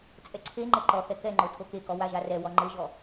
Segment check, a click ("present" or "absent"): present